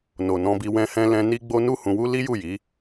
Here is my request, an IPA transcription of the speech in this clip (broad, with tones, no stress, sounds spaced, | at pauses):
n o˨ n ɔ̃˧ b i˧ w ɛ̃˧ h ɛ̃˧ l ɛ̃˧ n i˦ ɡ͡b o˦ n u˦ h ũ˧ w u˦ l i˦ j u˦˨ j i˨˦